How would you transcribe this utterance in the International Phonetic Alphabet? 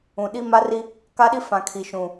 ũ˨ ɗ i˦ m a˦ r i˦ | k a˦ ɗ i˦ f ã˨ kʰ i˨ ʃ ũ˨

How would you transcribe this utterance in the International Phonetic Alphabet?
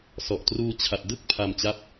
s ɔ˨˩ ʔ t r uː˧ t͡ɕʰ a˨˩ t̚ d ɯ˥˩ k̚ pʰ a˧ m t͡ɕ a˦˥ p̚

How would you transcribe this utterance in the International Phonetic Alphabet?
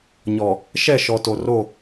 ɲ ɔ˨ | ʃ ɛ˦˨ ʃ ɔ˨ t o˨ r o˦˨

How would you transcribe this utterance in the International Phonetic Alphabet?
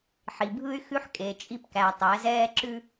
ħ i˨ bʱ ɯ˦ y̯ x ʉ˦ ħ kʼ e˨ t͡ʃʼ i˦ p k æ˨ tˤ æ˨˦ z ɛː˦ ǁ ʉ˦

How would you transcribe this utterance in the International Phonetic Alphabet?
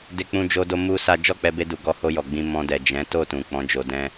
d e˧ k͡p ũ˧ d͡ʒ o˧ d o˧ m u˦ s a˦ d͡ʒ ɔ˦˨ k͡p ɛ˧ b e˧ d u˨ ɡ ɔ˧ h o˧ j ɔ˨ ɡ͡b ĩ˧ m ɔ̃˧ d ɛ˨ d͡ʒ ɛ̃˨˦ t o˦˨ t ũ˨ k͡p ɔ̃˨˦ d͡ʒ o˧ d ɛ̃˦

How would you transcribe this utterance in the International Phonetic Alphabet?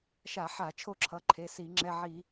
ʃ a˧˩˧ ħ a˧˩˧ t͡ʃʰ o˦ ǁʰ ʌ˩˧˩ ǃʰ e˩˧˩ s i˧˩˧ ŋ͡ǁ ɛ˩˧˩ ʕ i˧˩˧

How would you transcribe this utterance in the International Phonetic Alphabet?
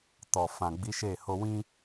t ɔ˨ f ã˨ ɡ͡b i˨˦ ʃ e˦˨ h o˧ w ĩ˦

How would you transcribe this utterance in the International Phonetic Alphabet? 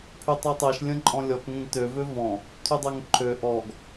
pʰ y tˤ ø tˤ ɛ ʃ lʲ ə̃ ǃʼ ɔ̃ lʲ ɔ k ŋ ẽ ɡ t ø v ø v ɔ̃ | tʰ y dˤ ɛ ŋ ǃʰ ø ʔ ɔ ɡ

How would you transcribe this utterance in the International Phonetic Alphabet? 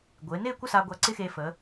ɡʷ ɪː˩˧ n ɪː˥˧ kʷ ə˥˧ s a˧ ɡʷ a˧ ǀ ɪ˥ x e˧ f ə˩˧

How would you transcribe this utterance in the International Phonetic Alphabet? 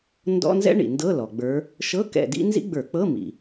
n d ɔ̰˧˥˧ n z ɛ̰˥ ɳ ḭ˩ n d ɤ˧˥˧ l ɔ˩ ɡ͡b ə˞˨˦ | ʃ ɤ˧˥˧ k ɛ̰˦˨ d ḭ˥ n z ḭ˥ ɡ͡b ə˞˧˩˧ k͡p ɤ˧˥˧ m ḭ˩

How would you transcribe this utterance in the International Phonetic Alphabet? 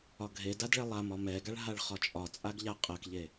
ɒ ɡʱ e d a d ɭ ɛ lˠ a m ɒ m ɛ ɡ a ɭ ɦ a ɭ χ ɒ t͡ʃʼ ɒ t͡sʼ a ɡ ʎ a qʼ ɜ k ʎ e

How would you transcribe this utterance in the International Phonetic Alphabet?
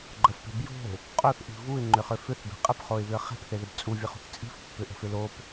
ɡ͡ǃ ə f p e̤ b j o̤ | qʼ o θ ʔ i̤ v u ɪ̯ ŋ͡ǃ ʏ χ ʏ f ʏ θ b e̤ qʼ ə p χ o ɪ̯ β ʏ ə̯ χ e̤ p θ e ð ə b t͡sʼ u vʲ ə χ ṳ θ t͡sʼ i̤ f pː ʏ ʔ ə̤ f ʏ l o p

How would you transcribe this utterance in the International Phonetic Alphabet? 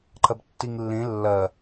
ǃ ɐ b tː i ŋ lː ẽ lː ɐ

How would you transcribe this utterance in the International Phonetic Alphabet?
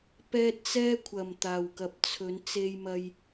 p ɛː˧ t̚ t͡s ɛː˧ kʷʰ ɐ˨ m t̪ aː˨ w k ɐ˨ p̚ t͡sʰ ɵ˨˧ n t͡s e˧ j m ɐ˧ j

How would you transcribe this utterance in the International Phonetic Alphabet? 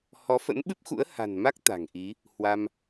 h ɔ˨˦ f ə̰˧˥ n ɓ ɨ˦˥ p̚ x ṵ˧˥ ə̯ h a̤˨˩ n m a˦˥ k̚ t̪ a̤˨˩ ŋ ʔ i˨˦ | h w a˧ m

